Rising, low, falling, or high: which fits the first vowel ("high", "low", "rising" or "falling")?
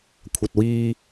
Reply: low